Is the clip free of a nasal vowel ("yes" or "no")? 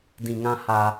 no